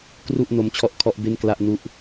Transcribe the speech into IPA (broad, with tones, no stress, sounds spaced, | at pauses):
k r u˥˩ ʔ n o˦˥ m t͡ɕʰ ɔ˦˥ ʔ kʰ ɔ˦˥ ʔ b e˥˩ n k l a˥˩ ʔ n u˥˩ ʔ